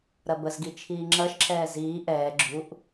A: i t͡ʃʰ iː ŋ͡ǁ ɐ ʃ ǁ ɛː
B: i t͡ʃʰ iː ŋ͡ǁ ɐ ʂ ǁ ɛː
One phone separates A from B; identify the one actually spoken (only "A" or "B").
A